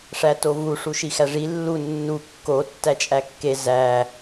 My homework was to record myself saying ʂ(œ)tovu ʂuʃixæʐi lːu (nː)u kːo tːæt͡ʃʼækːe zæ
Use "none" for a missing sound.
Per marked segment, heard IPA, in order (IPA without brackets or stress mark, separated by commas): æ, nː